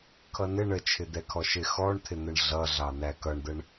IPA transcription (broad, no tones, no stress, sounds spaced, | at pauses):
kʰ ʌ n ɪ ɳ ə t͡ʃʰ ɪ d̪ ɛ kʰ ɔ ʃ ɪ x ɔ ɳ t̪ʰ ɪ n̪ ə ɳ ɮ ʌ ɮ ɑ n̪ æ k ʌ ɳ d̪ ə ɳ